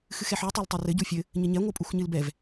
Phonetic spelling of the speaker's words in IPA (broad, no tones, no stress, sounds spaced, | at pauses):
x ɨ x ɛ ħ u tˤ a l tˤ a r ɘ ɟ u fʲ ɘ | ɲ ɘ ɲ ɛ ŋʷ ɨ pʼ u x ɲ ɨ l b ɛ v